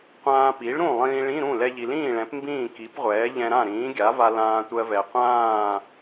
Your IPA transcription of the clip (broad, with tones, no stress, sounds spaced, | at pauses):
qʷ ãː˧ p i˩˥ ɭ ɾ ũ˥˩ lˠ ĩː˧ ɭ ĩ˧˥˧ ɾ ũ˥˩ l ɛ˧ ʎ i˩ l ĩː˥˩ ɭ ɛ̃˩˥ p m b ĩː˥˩ k i˩˥ p ʁʷ ɛː˩˥ ʎ ɛ̃˧ ɾ ã˥˩ ɾ ĩː˩˥ ɡʲ a˩˥ v a˧ l ãː˧ tʷ ɜ˧ v ɛ˩ qʷ ãː˥˩